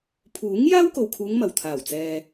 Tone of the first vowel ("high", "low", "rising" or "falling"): rising